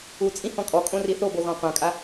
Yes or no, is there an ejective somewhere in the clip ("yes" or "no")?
yes